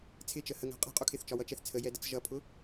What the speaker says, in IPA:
t͡sʰɪt͡ʃə həŋæ̤ qʼɛ̤qʼu kʰɪθt͡ʃɒwʌt͡ʃɛθ t͡sʰəjɛdət͡s ʒʌpʰʊ

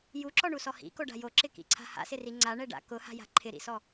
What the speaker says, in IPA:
juǁɔɳusɔ hḭkoɖa̤ joǁɪkḭǀʰa̤ ha̰sɪri ŋ͡ǀaɳɛɖa̰ kʊha̤ja̤ ǃʰɪɾḭsɔ

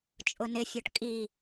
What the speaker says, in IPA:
t͡ʃʼʊnɪfʲɔʈ kʼi

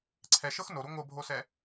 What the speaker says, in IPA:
ǀʰɛʃɤx noɾu ŋʷɤbʱosɛ

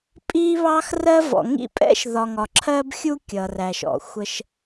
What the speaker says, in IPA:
pʼiː˦βɑ˦x rɜ˦ vɔ̰˨ŋḭ˦pʼɛ̰˦ʃðɒ˨ ŋɒ˨ǁʰɜː˦bxʲu˦ kʲʌː˨ræ˨ʃɔ̰˨xʷə˦ʃ

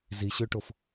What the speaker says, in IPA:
ziɕøʈof

